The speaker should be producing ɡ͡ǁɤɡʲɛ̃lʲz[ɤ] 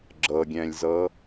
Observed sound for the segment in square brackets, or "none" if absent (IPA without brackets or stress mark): ɤ